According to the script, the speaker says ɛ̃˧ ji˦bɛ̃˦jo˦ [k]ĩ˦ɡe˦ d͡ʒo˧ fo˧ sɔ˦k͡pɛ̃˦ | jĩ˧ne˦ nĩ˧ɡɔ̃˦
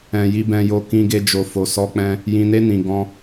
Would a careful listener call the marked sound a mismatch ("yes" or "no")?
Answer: no